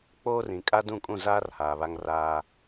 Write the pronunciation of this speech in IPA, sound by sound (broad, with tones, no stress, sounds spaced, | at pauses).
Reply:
k͡p oː˦ r ĩ˨ kʼ a˦ d ũ˦˨ kʼ ũ˦˨ z aː˦ r h aː˨ β a˦ ŋ r aː˦